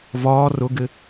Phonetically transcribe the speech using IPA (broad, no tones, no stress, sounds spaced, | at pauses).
v ɒː r ʊ ɡ ɪ